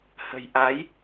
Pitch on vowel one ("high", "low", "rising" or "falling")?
low